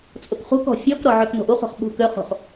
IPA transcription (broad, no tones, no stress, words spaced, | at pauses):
t͡sʼokχṳkɔ̤ fʲɔkɾɔ ʕøkno̤ʔuχo̤χ ɓṳkøχo̤χ